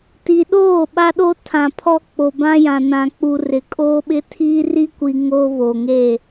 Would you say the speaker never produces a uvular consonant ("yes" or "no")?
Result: yes